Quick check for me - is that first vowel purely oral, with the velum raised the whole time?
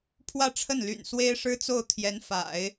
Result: yes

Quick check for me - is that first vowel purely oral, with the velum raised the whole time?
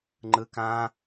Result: yes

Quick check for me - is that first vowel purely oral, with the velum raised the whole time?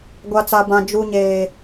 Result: yes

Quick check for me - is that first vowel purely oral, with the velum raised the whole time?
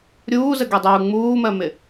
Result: yes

